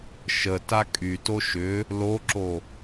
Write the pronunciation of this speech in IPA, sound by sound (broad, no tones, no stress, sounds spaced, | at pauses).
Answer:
ʃ ə t a kʼ y t o ʃ ʏ | l o ǁ o